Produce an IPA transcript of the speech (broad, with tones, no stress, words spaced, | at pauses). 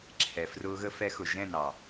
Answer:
ǁʰɛ˨frʊː˧ɣə˧ fɛ˧xʊ˨ʒɛ̃˦˨nɑ˨